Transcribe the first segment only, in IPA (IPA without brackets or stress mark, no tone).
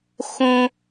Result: x